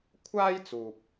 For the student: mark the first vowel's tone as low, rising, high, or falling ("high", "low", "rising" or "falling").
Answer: high